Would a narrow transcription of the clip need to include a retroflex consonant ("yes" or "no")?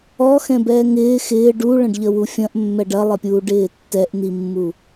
yes